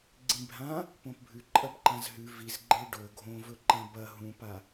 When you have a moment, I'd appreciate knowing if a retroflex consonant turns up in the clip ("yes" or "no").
yes